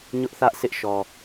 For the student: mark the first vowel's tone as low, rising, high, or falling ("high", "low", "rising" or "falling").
high